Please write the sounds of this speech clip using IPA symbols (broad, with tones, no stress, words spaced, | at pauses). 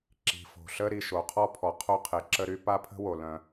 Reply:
ǁi̤˨fo̤˨ɬə˥ɾi˨ ʃo˨qʰɔ˥pʰɔ˨ qʰo˥qʰe˨ǁə˥ɾy˥ pa˥pʰə̤˥wo˨ lœ̃˨